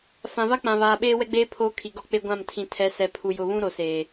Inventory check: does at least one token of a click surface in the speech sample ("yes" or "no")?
no